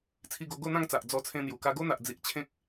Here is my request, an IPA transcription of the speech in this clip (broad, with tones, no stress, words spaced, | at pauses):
t͡sʰi˧ɡo˧ɡo˥˧ n̪ã˥˧ŋt͡sa˨ʔ d͡zɔ˧t͡sʰẽ˧n̪ju˨˩ ka˧ɡo˦n̪a˨ʔd͡zi˨ʔ t͡ɕʰẽ˦k̚